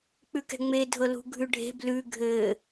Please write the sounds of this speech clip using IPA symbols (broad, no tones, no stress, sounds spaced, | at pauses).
k͡p ʉ k ɛ̤ ŋ͡m e dʱ ɤ l ṳ ɡʱ ʉ ɖʱ e̤ b l ʉ ɡʱ ɘ